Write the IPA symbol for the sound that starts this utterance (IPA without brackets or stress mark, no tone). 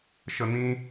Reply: ʃ